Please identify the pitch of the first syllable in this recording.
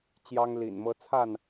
high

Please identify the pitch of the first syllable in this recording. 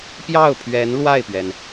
falling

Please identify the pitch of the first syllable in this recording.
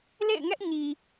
falling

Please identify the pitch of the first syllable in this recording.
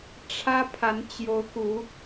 high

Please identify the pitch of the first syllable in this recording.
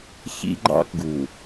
high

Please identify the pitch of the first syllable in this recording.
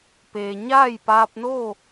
low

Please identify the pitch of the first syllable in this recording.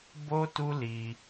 high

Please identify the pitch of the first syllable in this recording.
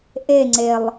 falling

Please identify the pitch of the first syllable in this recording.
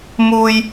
high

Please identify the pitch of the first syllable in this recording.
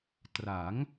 rising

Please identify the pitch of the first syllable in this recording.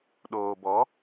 low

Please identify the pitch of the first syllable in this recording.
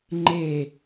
falling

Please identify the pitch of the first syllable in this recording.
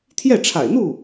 falling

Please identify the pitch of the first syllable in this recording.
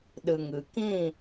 low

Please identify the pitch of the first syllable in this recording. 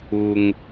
low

